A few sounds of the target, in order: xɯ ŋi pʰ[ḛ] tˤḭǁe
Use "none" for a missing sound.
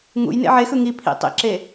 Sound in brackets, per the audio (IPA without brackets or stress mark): ḭ